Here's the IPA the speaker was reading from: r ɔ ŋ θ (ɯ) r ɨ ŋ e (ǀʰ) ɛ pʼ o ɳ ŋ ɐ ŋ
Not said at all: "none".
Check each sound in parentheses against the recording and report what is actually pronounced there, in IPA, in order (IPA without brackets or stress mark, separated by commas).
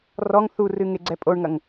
u, ɡ͡ǀ